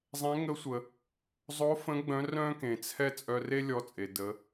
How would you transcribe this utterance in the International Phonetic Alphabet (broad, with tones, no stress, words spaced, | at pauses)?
zˤɛ̃˧˥ ŋə˧˥sʷə˩ | zˤo˧˥fə̃˧˥ ɡ͡bœ̃˧˥rœ̃˥ kẽ˩t͡sʰɛ˥ t͡sʼœ˧re˥ lʲɔ˧t͡sʼe˩ də˩˧